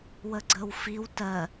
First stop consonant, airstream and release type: click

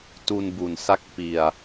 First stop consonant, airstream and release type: plain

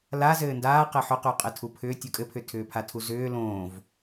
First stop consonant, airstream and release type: plain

